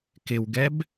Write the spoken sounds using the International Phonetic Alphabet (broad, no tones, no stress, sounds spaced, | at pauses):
k ɪ w ɡ ɛ b